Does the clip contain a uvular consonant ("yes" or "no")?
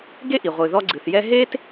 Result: yes